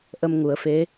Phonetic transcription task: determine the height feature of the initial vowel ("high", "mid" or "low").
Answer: mid